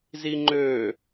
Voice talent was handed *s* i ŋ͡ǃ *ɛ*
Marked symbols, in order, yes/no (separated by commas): no, no